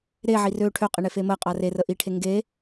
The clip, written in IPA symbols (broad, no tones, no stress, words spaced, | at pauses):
ɾeʕi rø ʈʰøqʼeɳefe məqʼa rerə ʔiʈʰe ŋɡe